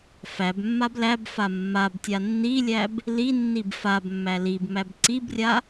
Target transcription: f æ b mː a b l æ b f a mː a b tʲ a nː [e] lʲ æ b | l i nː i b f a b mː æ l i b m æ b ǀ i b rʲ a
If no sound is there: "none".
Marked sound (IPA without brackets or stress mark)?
i